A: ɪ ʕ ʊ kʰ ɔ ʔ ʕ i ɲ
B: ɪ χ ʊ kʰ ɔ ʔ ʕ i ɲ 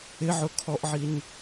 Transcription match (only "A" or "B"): A